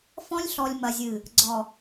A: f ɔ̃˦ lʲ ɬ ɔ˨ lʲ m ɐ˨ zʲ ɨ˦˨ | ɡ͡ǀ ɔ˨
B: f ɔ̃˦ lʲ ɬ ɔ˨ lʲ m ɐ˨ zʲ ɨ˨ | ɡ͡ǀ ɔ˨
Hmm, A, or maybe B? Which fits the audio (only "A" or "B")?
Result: B